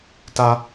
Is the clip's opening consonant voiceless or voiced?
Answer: voiceless